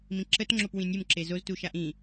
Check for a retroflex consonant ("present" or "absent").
absent